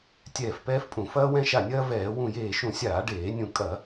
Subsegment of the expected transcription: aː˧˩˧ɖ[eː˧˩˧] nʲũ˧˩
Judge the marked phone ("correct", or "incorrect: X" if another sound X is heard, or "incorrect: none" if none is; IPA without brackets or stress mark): correct